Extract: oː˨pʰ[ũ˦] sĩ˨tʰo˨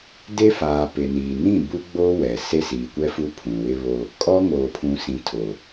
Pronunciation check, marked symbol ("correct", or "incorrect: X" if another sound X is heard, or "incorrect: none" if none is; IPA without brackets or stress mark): incorrect: ũ˨